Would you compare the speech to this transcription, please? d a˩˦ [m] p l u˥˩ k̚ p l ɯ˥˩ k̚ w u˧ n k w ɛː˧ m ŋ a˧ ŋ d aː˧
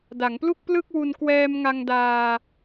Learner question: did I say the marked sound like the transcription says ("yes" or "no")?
no